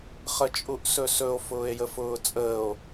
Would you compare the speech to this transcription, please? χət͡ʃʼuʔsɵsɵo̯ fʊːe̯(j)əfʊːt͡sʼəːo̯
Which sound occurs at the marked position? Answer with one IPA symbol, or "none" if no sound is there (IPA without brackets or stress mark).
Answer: j